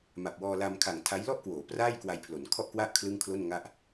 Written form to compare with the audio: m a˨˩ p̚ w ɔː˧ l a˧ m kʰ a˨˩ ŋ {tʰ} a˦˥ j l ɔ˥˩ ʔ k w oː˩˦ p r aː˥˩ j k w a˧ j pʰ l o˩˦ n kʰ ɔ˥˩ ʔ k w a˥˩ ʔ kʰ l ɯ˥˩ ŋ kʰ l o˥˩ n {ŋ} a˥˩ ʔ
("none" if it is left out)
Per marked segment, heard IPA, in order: tʰ, ŋ

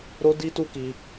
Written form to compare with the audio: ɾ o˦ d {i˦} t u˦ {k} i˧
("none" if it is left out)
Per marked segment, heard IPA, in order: i˦, k

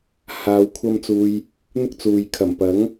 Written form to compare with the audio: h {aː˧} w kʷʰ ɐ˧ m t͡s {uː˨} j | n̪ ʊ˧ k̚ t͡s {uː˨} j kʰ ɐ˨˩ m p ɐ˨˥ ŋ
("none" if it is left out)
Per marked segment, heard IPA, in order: aː˨, uː˨, uː˨

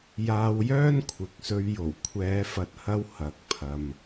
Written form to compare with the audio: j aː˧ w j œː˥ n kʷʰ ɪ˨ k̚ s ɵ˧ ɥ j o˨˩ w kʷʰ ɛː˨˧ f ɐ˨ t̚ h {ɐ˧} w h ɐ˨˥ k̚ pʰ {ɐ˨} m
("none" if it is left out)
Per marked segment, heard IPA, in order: ɐ˧, ɐ˨

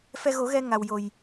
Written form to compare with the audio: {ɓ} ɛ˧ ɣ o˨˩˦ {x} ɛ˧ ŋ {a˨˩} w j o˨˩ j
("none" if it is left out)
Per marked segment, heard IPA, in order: f, ɣ, a˨˩

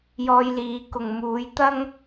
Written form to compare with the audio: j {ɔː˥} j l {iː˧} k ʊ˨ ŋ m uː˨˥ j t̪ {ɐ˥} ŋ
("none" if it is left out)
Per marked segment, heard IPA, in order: ɔː˧, iː˨˧, ɐ˥

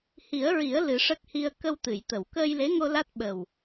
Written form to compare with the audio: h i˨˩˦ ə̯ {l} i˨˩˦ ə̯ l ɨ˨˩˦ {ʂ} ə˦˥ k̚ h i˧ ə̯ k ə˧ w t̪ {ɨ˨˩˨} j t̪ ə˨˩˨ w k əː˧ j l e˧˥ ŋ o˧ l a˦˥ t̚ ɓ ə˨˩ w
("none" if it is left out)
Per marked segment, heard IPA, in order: ɹ, ʂ, ɨ˨˩˨

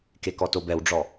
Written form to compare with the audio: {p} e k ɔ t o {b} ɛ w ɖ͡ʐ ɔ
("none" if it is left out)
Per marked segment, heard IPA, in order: k, b

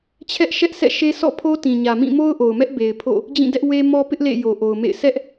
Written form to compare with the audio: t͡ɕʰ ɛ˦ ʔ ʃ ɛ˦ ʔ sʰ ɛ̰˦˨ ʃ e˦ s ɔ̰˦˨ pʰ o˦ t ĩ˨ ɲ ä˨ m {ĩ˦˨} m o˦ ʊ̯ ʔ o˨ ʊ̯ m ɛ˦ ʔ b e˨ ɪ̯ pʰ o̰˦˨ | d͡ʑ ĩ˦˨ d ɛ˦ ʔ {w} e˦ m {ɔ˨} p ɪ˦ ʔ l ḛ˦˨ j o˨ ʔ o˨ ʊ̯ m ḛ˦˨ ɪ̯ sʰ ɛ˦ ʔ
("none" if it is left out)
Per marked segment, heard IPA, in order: ĩ˦˨, w, ɔ˦

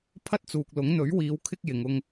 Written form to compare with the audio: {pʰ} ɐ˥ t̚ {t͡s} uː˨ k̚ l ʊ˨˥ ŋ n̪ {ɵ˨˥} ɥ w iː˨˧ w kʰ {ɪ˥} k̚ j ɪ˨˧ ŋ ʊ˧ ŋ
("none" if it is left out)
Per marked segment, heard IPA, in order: pʰ, t͡s, ɵ˨˥, ɪ˥

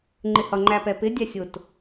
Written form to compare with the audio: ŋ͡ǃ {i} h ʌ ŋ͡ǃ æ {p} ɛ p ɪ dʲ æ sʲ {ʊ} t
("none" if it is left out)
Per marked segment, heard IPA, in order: ɪ, p, ʊ

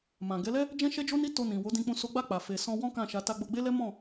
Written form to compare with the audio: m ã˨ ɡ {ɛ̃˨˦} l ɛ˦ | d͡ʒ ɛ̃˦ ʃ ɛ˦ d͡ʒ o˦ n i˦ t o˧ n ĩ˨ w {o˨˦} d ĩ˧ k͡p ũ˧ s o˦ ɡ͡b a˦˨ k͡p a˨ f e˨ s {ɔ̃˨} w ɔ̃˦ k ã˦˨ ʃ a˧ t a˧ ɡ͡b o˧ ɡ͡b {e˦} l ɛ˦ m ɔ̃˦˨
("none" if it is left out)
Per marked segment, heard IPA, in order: ɛ˨˦, o˨˦, ɔ̃˧, e˦

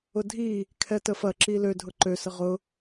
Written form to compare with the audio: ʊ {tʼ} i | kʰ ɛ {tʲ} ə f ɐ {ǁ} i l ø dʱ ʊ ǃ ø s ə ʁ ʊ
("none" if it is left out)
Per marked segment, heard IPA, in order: dʱ, t, ǁ

